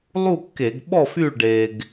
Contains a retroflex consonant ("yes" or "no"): yes